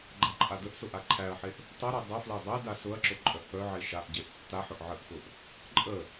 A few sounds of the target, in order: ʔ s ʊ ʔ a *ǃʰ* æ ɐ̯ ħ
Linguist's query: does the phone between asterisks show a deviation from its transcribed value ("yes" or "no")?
no